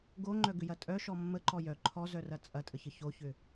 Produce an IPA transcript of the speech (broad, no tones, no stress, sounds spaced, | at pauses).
ɡ o ŋ͡ǃ œ ɡ ʏ j ɐ tʼ œ ʃ ɔ mː ə ǃ ɔ j œ ǃʰ ɔ z œ r ɐ t͡sʼ ɐ tʼ ə ç ə ç o ç ʏ